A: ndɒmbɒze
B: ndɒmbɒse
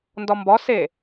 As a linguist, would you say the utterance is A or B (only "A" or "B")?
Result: B